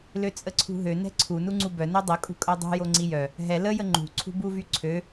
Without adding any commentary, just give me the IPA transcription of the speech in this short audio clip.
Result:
l ø t͡sʼ ə ǀʰ ṳ ɦ ø n ɛ̤ ǀʰ u n u ŋ͡ǀ u b œ n o dˤ ə kʼ ṳ kʼ œ dˤ ṳ j o ŋ͡ǀ i j œ | ɦ ɛ l ə j ə ŋ͡ǃ ṳ ǀʰ ṳ b u v y ǀʰ ø

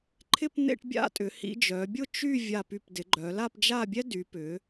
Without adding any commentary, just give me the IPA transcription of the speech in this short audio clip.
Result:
ǃʰ ɪ˥˧ p n̪ ḛ˥˧ ʈ bʲ a̰˥˧ tʼ ʏ˩˧ h ḭ˧ d͡ʒ œ˩˧ bʲ ʊ˥˧ t͡ʃ y˥˧ vʲ a˧˩ p y˧˩ p d ɪ˩˧ ɡ͡ǃ œ˩˧ l a˥˧ p d͡ʒ a˥˧ bʲ ɛ˥ d y˩˧ p ʏ˩˧

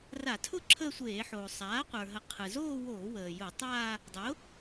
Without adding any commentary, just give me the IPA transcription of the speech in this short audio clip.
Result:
r a˧˩˧ tʰ ʊ˥˧ ǁʰ əː˥˧ sʷ eː˧˩˧ ħ oː˩ sˤ aː˩˥ qʷ ə˞˩ ɦ ə˩˥ qʰ ɯ˩ z oː˥˧ w oː˧˩˧ w əː˩ j ʊ˧˩˧ tˤ aː˥˧ | dˤ ʊ˩˥

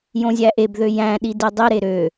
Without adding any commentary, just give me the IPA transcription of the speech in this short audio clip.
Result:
j õ zʲ æ ʔ e b ð ø j æ̃ ɗ i d i dˤ i ɾ e ɾ ø

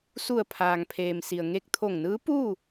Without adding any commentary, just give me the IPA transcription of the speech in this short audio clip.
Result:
s u˧˩ ə̯ pʰ aː˩ ŋ pʰ eː˩ m s i˩ ə̯ ŋ e˧ k̚ t̪ʰ o˧˩ ŋ n ɯː˧˥ p uː˥˨

